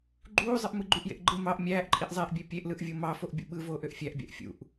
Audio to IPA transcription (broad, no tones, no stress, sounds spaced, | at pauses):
ɡ͡ǃ uː zˤ ɯ ʔ m ɯ ɡ͡ǃ y ʔ j ḛ ʔ ɡ͡ǃ ɯ m ɑ ʔ mʲ æː ʔ ǃʼ i ʔ zˤ eː ʔ bʲ e pʲ e ʔ l ɯ ʔ vʲ o m ɑ f o ʔ bʲ ṵ ɓ ɯ v oː ʔ ø ʔ fʲ æ ʔ bʲ æ̰ ʔ fʲ ṵ ʔ